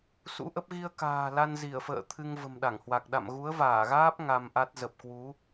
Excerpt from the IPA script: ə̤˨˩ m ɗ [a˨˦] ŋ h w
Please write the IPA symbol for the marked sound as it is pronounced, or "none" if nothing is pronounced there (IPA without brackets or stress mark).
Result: a˧˩